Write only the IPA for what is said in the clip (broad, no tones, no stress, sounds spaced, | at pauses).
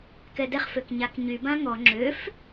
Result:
k ɛ d ɛ χ f ø k ɲ a k ɲ y b ã ŋ ɔ ŋ͡ǁ ø f